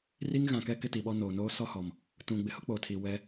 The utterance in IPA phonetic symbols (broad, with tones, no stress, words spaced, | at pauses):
ri˦ŋɣã˨kɛ˦ kɪ˦ti˨ɓɔ˦ noː˨noː˦ sɔ˦hɔ˨m | tũ˨ ɡ͡bɪ˨hʊ˦k͡poː˨tʰi˨ wɛ˦